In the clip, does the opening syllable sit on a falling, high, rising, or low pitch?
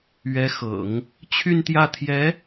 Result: rising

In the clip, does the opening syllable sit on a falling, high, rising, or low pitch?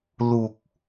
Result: low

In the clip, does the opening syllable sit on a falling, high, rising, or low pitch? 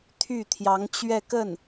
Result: falling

